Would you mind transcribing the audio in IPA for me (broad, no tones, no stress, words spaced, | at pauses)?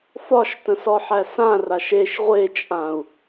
fɒʃtə̃sɔħæ sã raʃeʃ ʁʷet͡ʃʼãu̯